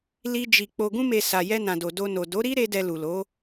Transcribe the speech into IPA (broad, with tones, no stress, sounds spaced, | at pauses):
l i˧ d͡ʒ i˨ k͡p o˨ ɡ ũ˧ m e˨ s a˨ j ɛ˧ n ã˨ d o˨ d o˧ n o˨ d o˨˦ ɾ i˦ ɾ e˦ d ɛ˧ l u˨ l o˨˦